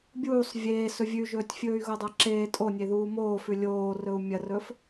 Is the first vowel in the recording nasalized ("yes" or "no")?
no